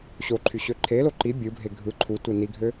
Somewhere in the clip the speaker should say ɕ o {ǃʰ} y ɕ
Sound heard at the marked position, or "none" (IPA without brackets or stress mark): ǃʰ